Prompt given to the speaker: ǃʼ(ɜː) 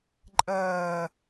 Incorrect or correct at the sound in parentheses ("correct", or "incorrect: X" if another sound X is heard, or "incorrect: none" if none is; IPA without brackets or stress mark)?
correct